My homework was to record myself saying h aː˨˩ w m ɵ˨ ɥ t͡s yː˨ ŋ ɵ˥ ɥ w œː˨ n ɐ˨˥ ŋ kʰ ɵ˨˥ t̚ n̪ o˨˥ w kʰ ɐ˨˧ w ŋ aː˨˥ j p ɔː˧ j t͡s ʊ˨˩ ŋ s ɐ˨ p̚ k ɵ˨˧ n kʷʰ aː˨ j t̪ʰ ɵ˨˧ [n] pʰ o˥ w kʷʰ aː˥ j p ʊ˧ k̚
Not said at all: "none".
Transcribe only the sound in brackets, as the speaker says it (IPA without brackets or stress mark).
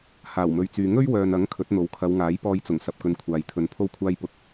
n